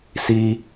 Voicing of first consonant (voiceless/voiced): voiceless